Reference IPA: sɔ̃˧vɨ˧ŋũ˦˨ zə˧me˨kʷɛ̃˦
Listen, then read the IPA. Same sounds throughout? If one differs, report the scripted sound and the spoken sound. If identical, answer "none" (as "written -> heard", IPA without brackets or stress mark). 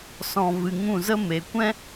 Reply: none